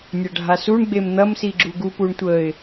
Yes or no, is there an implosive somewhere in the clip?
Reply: no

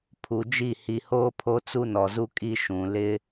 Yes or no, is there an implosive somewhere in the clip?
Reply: no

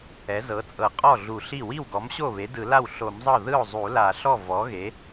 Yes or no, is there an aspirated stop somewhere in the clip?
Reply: no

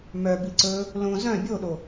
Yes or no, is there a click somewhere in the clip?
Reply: yes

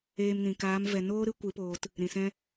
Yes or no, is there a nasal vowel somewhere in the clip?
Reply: yes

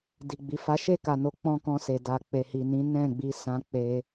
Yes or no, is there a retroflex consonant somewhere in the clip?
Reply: no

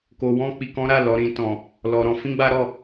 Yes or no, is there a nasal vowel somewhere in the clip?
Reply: yes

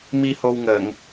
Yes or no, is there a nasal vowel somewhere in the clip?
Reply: no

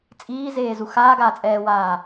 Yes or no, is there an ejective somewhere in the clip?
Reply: yes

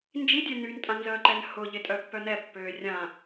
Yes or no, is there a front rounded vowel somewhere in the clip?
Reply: yes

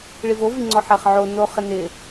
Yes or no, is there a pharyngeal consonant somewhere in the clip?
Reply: yes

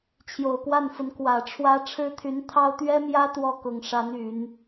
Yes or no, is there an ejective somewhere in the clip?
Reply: no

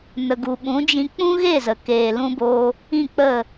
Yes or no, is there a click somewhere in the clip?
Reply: no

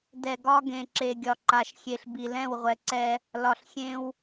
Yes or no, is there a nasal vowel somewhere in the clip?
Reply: yes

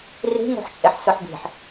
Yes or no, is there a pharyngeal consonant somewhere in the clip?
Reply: yes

